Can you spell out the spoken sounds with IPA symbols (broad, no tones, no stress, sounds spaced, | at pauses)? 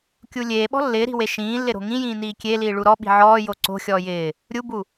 kʲ u lʲ eː ɓ ɔ̤ lː ɪː ɾ i̤ w e ʃ ĩː lː ɪ ɾ o̤ ŋ ĩ j ĩː n iː kʲ e l iː ɭ u ɾ ɔ ɓ i̤ ʕ ɔː j o ǀ o̤ xʲ ɔː j ɪː | ɾʲ u b u